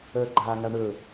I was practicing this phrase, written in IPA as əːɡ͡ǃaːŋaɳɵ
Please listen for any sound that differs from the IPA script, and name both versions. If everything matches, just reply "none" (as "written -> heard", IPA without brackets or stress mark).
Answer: none